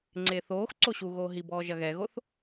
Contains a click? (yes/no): yes